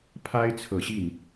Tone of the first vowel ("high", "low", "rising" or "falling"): high